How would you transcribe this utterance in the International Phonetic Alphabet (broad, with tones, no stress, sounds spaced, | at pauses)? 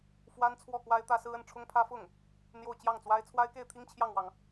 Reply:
f w a˥ n t͡sʰ w ɔ˥˩ k w a˥ ɪ̯ t̪ ä˥ s ɹ̩˥ ə˥˩ n ʈ͡ʂʰ ʊ˥ ŋ pʰ ä˥ f ʊ˥˩ ŋ | n̪ j o˥˧ ʊ̯ t͡ɕ j ɑ˥˩ ŋ t͡s w a˥ ɪ̯ t͡sʰ w a˥ ɪ̯ k e˥˩ ɪ̯ t̪ʰ i˥ ŋ t͡ɕʰ j ɑ˥˩ ŋ w ɑ˩ ŋ